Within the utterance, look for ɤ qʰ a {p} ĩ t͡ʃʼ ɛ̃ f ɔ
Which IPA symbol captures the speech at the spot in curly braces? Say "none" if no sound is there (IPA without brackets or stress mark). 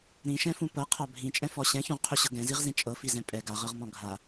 bʱ